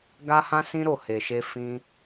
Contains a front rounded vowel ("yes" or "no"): no